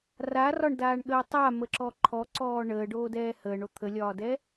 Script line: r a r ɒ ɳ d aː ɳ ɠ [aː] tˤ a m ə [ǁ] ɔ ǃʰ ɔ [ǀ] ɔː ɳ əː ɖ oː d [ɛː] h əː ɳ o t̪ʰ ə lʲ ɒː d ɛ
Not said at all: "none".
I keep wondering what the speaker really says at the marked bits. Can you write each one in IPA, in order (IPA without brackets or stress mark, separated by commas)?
əː, ǁ, ǀ, ɛː